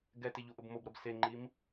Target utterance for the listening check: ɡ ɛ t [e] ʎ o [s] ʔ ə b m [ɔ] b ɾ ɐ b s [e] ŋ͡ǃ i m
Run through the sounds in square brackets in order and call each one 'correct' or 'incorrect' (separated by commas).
correct, incorrect, incorrect, correct